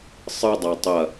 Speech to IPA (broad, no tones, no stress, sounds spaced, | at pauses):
sˤ ɨ dˤ a tˤ ɐ